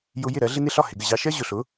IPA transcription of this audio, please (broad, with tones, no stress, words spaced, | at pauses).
jʊ˧jɪ˥˩ ɾɜ˩˥ɮɪ˥nɪ˥ ɬɒ˥˩hɪ˩ɡə˥˩ ʑɑ˧ʃɜ˥ ʑʊ˩ɬʊ˩˥